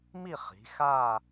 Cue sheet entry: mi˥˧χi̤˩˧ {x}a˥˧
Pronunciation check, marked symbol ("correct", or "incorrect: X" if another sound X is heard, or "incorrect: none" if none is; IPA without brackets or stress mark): correct